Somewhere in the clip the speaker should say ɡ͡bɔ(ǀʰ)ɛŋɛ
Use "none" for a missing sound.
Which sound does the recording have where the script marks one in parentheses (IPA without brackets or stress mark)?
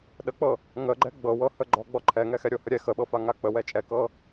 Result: ǃʰ